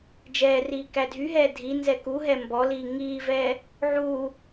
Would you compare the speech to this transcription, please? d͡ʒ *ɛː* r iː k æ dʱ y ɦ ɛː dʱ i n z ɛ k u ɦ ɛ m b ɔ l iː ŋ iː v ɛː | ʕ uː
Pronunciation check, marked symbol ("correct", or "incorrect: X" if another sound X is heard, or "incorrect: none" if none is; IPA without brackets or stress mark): correct